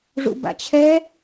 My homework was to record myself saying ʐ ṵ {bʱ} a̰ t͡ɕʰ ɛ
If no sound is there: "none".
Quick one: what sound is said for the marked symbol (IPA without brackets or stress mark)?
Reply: b